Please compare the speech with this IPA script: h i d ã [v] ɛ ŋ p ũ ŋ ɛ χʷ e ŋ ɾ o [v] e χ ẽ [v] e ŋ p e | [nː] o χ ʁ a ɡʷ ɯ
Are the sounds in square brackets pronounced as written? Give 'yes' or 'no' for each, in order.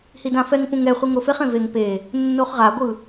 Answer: no, no, yes, yes

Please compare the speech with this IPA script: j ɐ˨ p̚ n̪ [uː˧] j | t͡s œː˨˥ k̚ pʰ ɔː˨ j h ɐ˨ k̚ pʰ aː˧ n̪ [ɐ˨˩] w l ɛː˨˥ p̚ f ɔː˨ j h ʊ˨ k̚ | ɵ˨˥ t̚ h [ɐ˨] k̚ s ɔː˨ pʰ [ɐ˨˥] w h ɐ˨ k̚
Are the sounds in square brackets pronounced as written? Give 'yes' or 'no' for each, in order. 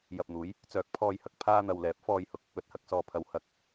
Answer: no, no, yes, yes

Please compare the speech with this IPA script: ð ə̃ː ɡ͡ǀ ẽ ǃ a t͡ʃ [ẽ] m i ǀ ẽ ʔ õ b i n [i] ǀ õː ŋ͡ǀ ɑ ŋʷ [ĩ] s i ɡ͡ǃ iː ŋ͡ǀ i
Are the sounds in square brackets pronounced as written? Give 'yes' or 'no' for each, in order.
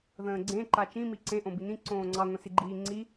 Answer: no, no, no

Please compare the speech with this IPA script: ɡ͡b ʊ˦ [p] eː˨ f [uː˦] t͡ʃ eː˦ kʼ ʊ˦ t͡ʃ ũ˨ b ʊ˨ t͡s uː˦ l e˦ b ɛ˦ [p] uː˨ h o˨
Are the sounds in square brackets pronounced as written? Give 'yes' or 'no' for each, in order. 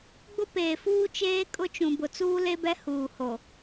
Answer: yes, yes, no

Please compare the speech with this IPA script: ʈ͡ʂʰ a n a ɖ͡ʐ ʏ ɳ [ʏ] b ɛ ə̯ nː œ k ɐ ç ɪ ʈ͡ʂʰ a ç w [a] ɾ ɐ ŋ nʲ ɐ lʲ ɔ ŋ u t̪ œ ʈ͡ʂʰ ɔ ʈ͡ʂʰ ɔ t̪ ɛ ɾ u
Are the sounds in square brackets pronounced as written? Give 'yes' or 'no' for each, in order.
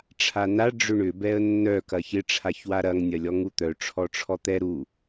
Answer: yes, yes

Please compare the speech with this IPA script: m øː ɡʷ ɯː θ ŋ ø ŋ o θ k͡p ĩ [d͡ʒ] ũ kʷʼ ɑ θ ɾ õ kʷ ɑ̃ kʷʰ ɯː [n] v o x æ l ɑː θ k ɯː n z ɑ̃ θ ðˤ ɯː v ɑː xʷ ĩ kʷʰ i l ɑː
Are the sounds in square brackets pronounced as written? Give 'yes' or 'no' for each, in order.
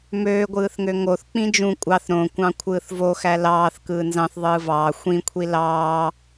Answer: yes, no

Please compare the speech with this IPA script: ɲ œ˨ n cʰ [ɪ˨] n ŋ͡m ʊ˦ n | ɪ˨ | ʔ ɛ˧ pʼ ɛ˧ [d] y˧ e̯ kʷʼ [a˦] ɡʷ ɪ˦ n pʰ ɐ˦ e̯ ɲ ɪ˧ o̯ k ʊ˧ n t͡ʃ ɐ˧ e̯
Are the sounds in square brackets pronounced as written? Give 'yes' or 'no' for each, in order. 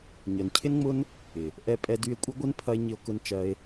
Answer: no, yes, no

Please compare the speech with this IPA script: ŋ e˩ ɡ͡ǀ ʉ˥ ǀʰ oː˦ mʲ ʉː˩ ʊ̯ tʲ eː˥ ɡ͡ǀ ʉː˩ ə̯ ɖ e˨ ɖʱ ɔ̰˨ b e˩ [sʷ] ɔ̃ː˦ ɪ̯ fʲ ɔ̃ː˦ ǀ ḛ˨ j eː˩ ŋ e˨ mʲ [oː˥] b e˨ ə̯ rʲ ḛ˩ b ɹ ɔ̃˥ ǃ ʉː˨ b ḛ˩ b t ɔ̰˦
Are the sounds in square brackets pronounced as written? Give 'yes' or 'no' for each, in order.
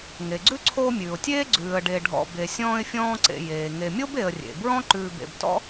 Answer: no, no

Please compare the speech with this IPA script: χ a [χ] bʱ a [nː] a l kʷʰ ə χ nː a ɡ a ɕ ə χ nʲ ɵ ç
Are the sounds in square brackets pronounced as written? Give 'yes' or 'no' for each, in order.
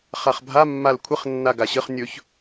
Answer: yes, no

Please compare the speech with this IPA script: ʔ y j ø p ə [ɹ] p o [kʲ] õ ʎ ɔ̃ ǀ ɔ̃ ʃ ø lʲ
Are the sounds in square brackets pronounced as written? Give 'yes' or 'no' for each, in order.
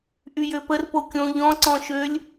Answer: no, yes

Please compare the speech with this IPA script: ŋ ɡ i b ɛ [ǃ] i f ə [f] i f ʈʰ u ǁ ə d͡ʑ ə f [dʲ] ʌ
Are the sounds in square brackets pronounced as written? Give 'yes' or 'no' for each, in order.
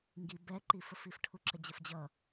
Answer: yes, yes, no

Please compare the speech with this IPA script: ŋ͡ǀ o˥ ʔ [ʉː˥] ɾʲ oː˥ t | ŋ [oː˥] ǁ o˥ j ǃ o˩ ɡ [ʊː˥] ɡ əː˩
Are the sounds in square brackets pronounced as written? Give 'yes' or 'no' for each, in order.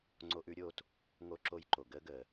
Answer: no, no, no

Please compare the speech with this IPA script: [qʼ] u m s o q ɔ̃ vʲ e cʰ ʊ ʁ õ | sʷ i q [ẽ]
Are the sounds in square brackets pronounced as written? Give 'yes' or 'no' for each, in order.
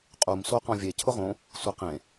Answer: yes, yes

